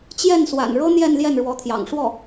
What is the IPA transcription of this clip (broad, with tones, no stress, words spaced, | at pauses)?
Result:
t͡ɕjɛ˥˩nswa̰˨˩nɻɤ˥ n̪jɛ˥˧n ljɛ˥˩nɻwɔ˧˥t̪ʰjɑ̰˨˩ŋ ʂwɔ˥˩